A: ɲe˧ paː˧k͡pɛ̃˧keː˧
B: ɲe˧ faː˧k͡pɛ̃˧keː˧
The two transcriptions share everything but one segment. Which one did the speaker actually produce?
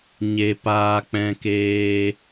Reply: A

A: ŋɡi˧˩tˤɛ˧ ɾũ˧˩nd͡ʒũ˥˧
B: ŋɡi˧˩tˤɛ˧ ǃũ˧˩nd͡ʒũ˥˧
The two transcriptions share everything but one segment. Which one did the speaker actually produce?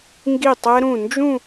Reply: A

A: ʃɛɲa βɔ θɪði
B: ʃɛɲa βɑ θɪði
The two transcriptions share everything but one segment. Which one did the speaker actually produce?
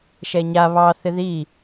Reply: B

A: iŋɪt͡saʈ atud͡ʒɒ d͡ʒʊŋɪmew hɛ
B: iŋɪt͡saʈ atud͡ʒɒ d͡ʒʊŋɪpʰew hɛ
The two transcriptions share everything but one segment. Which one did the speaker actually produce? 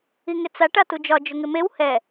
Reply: A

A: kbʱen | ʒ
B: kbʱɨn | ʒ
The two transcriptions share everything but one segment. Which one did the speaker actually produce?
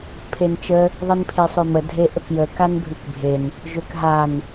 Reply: A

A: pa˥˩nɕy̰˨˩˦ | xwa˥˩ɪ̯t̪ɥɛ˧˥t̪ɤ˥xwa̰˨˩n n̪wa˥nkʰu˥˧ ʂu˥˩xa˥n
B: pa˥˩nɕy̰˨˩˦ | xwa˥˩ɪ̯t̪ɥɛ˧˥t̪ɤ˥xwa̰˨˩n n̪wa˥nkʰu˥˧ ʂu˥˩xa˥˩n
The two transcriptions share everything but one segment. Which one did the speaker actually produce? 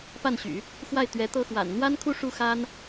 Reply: A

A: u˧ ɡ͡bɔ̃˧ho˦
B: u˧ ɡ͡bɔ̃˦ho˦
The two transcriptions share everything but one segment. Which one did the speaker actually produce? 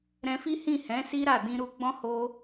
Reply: B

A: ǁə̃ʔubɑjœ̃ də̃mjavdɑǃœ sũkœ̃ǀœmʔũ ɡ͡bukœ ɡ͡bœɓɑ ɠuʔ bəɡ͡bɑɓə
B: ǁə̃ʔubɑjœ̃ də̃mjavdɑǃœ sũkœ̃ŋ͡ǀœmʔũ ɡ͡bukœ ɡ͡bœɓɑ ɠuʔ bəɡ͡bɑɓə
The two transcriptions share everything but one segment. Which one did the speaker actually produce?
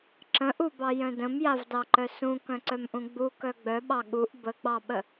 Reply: A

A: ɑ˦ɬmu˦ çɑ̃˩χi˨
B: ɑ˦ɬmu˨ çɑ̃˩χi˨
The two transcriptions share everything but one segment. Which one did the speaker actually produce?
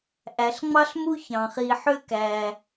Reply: A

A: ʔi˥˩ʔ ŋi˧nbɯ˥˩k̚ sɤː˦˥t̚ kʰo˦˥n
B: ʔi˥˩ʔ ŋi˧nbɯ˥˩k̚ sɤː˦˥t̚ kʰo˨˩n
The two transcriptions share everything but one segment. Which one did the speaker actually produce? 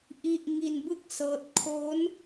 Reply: A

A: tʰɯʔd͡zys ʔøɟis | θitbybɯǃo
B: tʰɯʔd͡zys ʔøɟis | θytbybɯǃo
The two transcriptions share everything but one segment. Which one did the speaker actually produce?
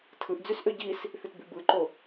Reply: A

